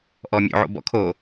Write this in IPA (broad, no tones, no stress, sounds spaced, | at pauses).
ʔ ɔ mʲ o̰ ʕ o̰ b ɔ̰ kʰ o